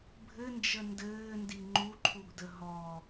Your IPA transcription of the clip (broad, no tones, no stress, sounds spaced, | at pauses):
bʱ ɘ n d͡ʒ ə n d ɘː n d i ŋ͡ǃ u ǃʰ u ɡ d ə ɦ ɔ